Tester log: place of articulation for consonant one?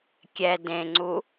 velar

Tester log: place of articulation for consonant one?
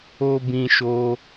labial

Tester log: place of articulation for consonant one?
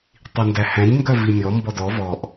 alveolar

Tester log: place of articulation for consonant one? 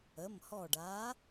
labial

